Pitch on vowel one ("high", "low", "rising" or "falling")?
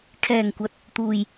low